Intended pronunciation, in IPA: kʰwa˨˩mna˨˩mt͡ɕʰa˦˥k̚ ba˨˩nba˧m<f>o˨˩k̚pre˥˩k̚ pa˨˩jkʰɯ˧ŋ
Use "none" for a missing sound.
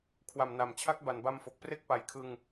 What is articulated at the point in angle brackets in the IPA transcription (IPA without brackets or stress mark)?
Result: f